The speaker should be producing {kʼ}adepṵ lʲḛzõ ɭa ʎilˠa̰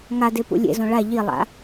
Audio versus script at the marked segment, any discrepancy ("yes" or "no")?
yes